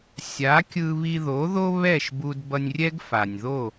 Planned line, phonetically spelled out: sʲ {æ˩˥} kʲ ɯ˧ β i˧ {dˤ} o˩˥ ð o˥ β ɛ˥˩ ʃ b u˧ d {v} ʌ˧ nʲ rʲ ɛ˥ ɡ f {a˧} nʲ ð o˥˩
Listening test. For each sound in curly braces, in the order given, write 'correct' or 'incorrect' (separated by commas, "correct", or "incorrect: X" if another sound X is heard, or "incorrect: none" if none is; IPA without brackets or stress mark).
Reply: incorrect: a˩˥, incorrect: ð, incorrect: b, incorrect: a˩